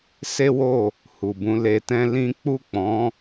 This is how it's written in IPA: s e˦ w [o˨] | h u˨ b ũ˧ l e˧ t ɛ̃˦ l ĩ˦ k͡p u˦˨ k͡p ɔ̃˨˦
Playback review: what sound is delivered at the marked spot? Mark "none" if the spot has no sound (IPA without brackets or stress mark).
o˦˨